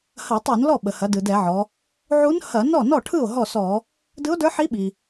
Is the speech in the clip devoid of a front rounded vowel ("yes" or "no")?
yes